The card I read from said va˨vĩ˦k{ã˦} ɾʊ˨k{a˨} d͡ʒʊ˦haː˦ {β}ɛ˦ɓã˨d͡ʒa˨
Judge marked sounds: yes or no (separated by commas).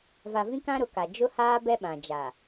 yes, yes, no